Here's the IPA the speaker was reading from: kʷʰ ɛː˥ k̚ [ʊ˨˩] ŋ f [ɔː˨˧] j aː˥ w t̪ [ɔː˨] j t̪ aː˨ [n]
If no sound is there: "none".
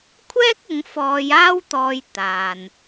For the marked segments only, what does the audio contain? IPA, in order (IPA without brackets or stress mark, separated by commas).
ʊ˨˧, ɔː˨˧, ɔː˧, n